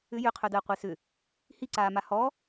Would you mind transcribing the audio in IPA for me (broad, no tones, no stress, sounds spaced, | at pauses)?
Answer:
ʏ j ʏ qʰ œ d əː qʷ e s ʏ | h i ǀ aː m a h ɔ